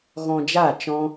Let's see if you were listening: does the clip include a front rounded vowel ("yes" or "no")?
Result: no